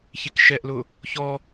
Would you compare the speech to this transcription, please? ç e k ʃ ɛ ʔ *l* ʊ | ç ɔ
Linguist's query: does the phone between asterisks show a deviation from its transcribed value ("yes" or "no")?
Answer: no